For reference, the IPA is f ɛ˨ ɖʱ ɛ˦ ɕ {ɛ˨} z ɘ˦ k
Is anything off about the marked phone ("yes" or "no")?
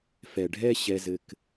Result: yes